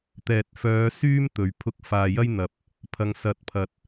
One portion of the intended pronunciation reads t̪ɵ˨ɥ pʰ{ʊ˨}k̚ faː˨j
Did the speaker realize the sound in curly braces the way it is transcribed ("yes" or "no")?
no